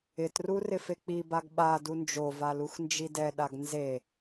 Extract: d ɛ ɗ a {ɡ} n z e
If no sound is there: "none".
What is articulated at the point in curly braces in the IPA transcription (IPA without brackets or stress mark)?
ɡ